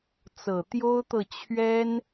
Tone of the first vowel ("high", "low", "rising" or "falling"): low